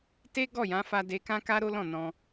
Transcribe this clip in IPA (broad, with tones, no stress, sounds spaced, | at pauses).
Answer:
t e˦ ɡ ɔ˦˨ j ã˨˦ f a˧ d e˧ k ã˦ k a˦ ɾ o˦ l ɔ̃˦˨ n ɔ̃˧